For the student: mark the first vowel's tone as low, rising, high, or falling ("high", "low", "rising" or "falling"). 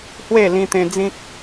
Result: falling